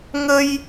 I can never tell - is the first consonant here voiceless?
no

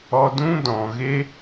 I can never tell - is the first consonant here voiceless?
no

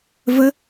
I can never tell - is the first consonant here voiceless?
no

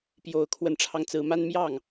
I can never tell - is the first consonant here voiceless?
yes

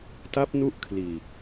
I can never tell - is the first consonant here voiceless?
yes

